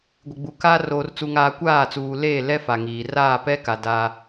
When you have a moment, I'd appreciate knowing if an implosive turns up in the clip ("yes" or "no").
no